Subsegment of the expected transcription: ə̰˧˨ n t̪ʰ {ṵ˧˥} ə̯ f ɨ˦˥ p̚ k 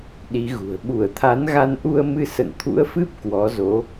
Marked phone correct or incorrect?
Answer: correct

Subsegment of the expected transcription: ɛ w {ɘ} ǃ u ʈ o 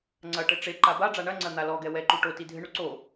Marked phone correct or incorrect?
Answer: incorrect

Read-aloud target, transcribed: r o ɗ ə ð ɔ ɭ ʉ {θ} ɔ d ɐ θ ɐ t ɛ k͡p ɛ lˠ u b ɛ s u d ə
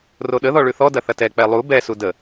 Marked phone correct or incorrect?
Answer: correct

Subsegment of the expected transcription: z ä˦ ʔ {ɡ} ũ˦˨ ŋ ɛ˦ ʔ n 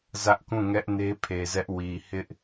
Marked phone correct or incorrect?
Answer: incorrect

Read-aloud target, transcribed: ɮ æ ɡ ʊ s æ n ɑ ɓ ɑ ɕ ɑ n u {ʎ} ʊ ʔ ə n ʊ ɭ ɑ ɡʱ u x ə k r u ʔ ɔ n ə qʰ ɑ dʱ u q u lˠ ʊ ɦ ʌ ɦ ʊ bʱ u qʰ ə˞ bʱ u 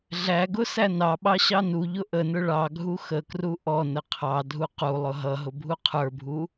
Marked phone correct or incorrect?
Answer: correct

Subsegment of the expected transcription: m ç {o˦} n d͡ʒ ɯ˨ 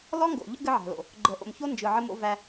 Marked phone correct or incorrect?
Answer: correct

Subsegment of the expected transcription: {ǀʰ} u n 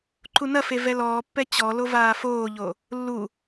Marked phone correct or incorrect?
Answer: incorrect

